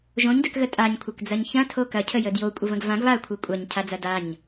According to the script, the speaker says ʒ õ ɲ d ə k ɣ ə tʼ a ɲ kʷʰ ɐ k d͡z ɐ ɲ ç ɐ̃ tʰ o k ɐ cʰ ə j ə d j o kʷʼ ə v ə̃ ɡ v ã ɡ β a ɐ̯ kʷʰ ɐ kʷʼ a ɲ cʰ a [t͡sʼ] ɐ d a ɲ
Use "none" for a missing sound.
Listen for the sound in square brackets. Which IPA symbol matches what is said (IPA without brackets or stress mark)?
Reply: d͡z